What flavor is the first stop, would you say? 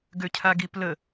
plain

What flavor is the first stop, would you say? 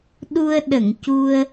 implosive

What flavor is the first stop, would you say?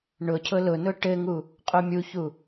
aspirated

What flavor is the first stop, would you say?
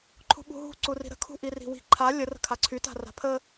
click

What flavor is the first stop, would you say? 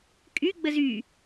ejective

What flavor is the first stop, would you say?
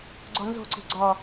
click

